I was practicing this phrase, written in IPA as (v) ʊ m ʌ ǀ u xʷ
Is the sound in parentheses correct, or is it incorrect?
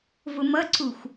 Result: correct